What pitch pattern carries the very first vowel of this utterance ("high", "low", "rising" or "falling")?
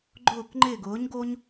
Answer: falling